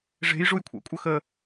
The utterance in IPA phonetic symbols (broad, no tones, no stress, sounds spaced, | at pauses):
ʐ e̤ j ʐ u j kʷʰ æ̰ kʷʼ ə x ə